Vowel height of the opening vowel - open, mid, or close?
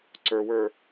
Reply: mid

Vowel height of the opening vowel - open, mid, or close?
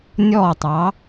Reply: mid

